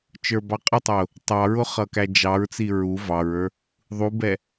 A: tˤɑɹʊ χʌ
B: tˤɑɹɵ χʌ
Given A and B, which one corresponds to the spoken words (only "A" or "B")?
A